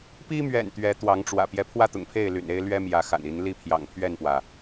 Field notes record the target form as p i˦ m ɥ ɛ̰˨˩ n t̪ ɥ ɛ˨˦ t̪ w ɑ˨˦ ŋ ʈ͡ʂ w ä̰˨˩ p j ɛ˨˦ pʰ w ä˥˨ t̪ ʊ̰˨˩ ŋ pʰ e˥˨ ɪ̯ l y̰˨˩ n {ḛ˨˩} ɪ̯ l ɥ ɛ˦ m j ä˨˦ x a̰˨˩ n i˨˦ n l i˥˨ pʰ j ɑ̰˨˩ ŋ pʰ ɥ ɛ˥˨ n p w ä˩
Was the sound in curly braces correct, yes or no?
no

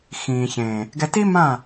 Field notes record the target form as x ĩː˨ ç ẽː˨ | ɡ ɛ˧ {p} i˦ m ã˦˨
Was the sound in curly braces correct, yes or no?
no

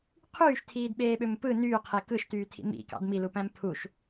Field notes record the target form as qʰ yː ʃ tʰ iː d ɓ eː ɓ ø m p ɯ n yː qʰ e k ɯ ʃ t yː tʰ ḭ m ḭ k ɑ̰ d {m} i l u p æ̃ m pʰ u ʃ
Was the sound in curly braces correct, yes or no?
yes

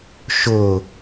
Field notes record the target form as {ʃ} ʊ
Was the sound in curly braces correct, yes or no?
yes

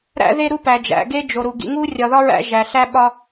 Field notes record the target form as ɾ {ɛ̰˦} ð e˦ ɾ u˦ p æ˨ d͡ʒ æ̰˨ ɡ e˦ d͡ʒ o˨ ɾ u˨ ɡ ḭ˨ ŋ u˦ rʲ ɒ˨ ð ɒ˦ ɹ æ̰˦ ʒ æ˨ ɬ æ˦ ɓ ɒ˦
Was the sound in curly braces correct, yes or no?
no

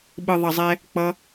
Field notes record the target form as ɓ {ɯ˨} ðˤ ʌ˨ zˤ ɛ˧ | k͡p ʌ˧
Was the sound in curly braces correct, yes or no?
yes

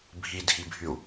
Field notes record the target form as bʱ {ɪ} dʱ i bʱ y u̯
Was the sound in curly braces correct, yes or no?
no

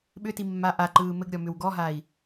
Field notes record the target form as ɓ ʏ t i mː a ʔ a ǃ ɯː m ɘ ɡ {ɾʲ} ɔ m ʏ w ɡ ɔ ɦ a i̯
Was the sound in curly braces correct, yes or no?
yes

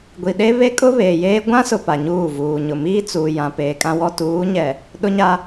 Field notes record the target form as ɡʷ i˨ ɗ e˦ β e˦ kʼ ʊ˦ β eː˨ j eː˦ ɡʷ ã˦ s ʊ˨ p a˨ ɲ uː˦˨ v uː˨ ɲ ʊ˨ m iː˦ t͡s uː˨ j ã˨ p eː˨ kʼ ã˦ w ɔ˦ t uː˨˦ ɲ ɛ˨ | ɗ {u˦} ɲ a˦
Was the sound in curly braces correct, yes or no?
no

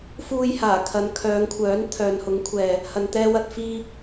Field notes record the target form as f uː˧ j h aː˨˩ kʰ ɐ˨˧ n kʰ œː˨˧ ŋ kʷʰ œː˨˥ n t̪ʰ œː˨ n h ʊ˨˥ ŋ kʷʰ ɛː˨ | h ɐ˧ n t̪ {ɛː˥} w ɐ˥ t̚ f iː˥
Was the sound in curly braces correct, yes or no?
yes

